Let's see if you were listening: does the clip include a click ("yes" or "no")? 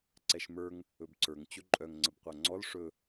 yes